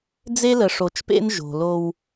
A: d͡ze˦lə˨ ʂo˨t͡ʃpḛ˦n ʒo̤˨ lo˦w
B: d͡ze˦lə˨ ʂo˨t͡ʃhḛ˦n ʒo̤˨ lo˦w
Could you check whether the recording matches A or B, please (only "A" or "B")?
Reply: A